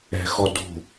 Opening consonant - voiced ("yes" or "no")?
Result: no